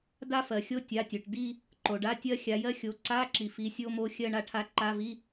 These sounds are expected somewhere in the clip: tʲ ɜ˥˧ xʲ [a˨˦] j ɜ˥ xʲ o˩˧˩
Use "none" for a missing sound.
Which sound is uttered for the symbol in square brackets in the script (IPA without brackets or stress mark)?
a˨˦